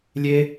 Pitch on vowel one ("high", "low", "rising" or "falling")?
high